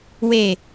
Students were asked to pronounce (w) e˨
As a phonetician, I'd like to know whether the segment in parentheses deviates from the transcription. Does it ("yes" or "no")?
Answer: no